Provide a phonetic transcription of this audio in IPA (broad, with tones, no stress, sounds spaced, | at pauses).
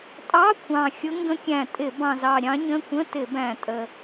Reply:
tʼ ɑ˧˥˧ kʷʰ ɑ̃˨˩ xʲ ʊ˧˥ ŋ ɡ ə̃˧˥ kʲ æ̃˨˩ tʼ ɪ˧˩˧ b ɑ̃˨˩ z ɑ˨˩ ɾʲ ɑ̃˧˥ ɲ ə̃˧˥˧ kʷ ə̃˧˥˧ t ɪ˧˩˧ b æ̃˨˩ tʼ ə˨˩